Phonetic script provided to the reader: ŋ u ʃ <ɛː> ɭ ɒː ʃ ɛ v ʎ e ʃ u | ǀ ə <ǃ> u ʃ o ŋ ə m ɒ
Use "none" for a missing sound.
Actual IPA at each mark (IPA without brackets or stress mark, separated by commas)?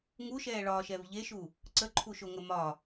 ɛː, ǃʰ